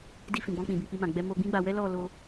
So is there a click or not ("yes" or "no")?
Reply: no